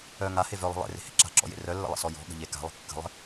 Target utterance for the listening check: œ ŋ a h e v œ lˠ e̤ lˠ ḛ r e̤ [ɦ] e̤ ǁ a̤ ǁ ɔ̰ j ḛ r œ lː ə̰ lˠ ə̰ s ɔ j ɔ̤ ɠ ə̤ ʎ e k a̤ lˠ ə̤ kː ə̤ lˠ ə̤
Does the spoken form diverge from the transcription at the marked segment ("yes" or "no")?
yes